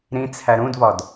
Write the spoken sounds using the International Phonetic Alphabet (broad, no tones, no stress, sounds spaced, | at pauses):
ɾ ĩ t͡sʰ æ ɾ ũ d v ɒ d